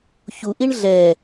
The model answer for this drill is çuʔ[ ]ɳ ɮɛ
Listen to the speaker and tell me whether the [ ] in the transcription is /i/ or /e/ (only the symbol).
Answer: i